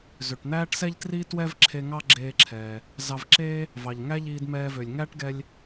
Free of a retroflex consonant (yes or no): no